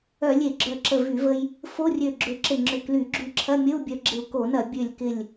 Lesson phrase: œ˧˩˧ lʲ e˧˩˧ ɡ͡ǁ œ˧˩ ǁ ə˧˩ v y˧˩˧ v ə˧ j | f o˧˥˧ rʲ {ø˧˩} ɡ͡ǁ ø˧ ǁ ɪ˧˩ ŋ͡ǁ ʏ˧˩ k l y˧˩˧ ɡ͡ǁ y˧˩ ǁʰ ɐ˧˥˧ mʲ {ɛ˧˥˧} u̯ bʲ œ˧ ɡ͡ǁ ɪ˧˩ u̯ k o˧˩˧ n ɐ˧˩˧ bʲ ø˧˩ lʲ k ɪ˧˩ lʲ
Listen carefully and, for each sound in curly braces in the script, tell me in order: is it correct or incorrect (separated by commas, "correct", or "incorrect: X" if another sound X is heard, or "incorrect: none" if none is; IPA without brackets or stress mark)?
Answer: correct, incorrect: ə˧˥˧